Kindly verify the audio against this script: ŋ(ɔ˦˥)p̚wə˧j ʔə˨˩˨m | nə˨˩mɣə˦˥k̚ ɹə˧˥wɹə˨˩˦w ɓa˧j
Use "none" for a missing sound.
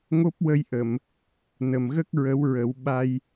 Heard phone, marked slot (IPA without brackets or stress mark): o˦˥